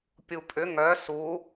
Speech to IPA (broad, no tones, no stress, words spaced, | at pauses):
pʲupʼʏ ŋœ su